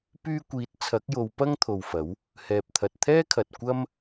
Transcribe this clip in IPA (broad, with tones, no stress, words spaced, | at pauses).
pyː˧kʷiː˨˥t̚ t͡sʰɐ˨˥k̚jo˨˧w pɐ˥ŋt̪ʰo˨wfɐ˨˥w | hɛː˨p̚t̪ʰɐ˨t̚t̪ʰɛː˥kʰɐ˨t̚ kʷɐ˥m